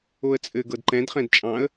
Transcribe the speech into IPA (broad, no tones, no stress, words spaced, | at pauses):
oə̯t͡sʼɘ ɡɤdǃɛ̃d χɛ̃dt͡ʃʼɑ̃ə̯